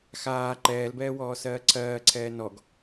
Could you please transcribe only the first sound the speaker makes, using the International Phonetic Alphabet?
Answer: x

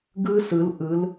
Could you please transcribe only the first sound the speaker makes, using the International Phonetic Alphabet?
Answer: ɡ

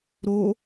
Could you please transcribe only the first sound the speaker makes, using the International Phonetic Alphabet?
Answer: ɾ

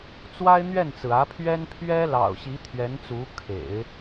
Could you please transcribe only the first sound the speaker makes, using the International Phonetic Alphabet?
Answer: t͡s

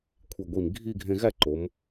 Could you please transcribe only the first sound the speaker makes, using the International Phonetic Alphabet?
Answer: kʷʰ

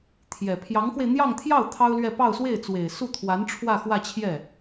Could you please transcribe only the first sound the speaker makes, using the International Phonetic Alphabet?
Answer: t̪ʰ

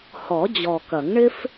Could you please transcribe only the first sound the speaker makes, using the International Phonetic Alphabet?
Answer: h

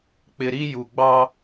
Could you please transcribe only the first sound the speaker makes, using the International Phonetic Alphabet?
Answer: k͡p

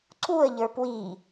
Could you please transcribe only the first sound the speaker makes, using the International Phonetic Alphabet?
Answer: ǀ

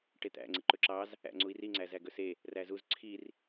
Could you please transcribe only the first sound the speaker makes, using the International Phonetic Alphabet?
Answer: ʈ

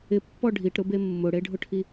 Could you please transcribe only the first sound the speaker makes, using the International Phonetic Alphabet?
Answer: ɪ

